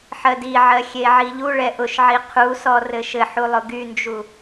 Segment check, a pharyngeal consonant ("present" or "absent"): present